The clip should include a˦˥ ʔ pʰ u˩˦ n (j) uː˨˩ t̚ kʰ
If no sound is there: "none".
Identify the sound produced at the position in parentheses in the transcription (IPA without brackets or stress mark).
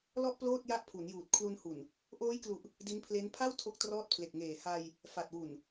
j